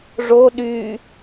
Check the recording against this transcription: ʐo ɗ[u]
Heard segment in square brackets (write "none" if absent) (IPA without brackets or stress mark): y